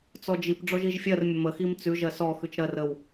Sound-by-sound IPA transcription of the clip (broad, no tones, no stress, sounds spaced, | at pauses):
t͡s ɔ d͡ʒ i p ɖ͡ʐ ɔ ʒ i ʒ fʲ ɜ r mʲ ə m ə x i m t͡s ʉ ʒ ɜ s ɔ x ʉ t͡ʃ ɾ ɜ r ə w